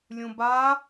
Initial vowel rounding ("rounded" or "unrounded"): rounded